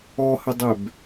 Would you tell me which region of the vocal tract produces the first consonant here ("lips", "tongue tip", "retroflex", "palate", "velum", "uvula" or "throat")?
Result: throat